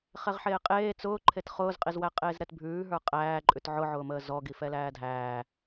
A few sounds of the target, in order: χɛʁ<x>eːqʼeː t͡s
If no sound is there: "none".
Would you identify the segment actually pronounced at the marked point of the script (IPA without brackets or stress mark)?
ħ